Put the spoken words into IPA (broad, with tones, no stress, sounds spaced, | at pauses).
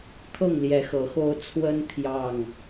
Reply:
t̪ʰ ɤ˥˨ ŋ l j ɛ˨˦ x ɤ˨˦ x o˦ ʊ̯ t͡sʰ w ə˦ n t̪ʰ j ɑ˥˨ ŋ